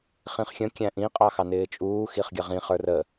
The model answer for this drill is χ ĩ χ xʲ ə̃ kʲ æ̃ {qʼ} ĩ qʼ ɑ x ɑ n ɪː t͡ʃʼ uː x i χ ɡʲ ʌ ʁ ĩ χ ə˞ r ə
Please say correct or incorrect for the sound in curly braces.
incorrect